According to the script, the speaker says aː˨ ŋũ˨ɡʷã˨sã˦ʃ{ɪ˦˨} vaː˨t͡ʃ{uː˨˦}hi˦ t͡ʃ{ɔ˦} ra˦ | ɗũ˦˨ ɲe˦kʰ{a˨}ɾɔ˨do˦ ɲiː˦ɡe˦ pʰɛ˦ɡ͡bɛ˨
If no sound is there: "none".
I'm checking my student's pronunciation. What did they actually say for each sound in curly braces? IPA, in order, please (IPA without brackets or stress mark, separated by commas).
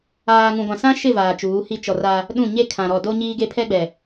ɪ˦˨, uː˨˦, ɔ˨, ã˨